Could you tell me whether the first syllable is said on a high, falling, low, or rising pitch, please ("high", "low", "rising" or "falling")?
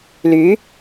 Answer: rising